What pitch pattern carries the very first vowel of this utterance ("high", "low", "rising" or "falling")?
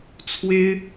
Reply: high